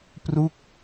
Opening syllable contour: falling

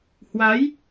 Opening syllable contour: rising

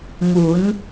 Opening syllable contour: rising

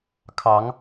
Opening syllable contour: rising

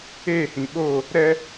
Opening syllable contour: falling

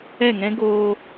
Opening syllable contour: falling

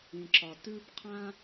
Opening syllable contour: low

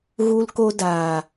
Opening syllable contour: high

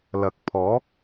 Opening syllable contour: low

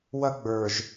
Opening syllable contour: high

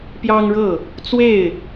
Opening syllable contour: high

